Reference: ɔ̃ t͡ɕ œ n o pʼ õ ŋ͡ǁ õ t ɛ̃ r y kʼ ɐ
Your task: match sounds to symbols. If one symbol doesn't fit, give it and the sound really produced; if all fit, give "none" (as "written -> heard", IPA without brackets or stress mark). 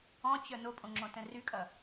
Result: none